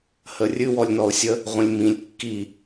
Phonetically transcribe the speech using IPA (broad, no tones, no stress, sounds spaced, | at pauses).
h ə rʲ ɨ w ɔ lʲ n ɔ ʊ̯ sʲ ə | ʁʷ ə̃ lʲ m ĩ lʲ kː i